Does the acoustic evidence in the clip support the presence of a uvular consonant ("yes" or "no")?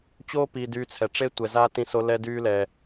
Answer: no